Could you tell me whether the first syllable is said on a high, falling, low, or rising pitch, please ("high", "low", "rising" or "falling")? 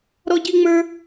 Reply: high